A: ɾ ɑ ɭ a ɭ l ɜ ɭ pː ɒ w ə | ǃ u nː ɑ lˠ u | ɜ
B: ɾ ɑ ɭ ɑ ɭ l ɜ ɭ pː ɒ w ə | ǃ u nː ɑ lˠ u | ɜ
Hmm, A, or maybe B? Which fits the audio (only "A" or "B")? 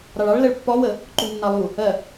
B